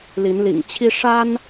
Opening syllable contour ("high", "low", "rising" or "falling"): rising